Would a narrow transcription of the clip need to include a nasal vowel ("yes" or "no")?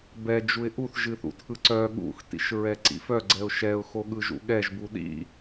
no